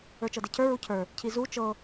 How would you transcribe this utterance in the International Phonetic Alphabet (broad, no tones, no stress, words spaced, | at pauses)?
ə˞t͡ʃɤdecʰə˞ ɹucʰə˞ | cʰizu t͡ʃɤ